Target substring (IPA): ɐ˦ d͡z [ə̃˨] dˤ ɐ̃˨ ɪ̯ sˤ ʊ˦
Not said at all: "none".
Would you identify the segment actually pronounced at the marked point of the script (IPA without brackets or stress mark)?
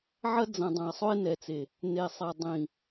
ɐ̃˨